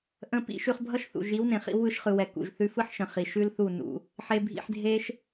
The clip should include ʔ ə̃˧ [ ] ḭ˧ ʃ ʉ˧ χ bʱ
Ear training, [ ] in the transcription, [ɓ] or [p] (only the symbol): p